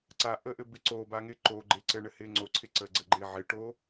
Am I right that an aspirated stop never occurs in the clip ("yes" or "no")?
no